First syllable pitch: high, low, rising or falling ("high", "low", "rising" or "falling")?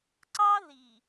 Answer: high